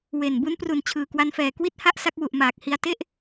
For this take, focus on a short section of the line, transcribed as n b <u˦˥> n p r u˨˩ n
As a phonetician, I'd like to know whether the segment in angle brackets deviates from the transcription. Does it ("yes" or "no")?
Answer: no